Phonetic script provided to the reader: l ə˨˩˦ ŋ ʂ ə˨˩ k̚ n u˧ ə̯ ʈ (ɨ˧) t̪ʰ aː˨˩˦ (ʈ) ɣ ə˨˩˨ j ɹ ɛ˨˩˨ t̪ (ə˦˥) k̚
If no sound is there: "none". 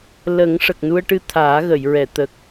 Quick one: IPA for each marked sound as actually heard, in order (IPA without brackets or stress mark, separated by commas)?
ɨ˧, none, ə˨˩